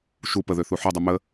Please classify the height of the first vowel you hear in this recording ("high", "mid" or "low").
high